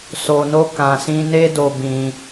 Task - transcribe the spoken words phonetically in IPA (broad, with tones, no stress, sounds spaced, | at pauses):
s o˧ n o˦ k ã˧ s ĩ˦ n e˦ d o˧ b ĩ˧